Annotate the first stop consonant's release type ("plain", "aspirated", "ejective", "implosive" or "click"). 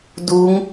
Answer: plain